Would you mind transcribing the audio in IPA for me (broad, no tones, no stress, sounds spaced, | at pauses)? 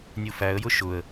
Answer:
nʲ u f æ ə̯ j ʊ ʃ ʊ ə̯